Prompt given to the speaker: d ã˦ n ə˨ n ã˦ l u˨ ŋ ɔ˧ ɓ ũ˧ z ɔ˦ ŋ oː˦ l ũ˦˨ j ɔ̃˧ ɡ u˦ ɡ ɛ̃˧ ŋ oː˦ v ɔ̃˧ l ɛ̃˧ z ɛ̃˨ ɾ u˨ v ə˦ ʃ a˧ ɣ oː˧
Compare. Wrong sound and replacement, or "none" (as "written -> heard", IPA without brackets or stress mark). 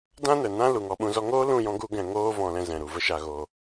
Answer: none